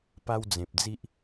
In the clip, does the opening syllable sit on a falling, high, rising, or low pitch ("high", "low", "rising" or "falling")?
high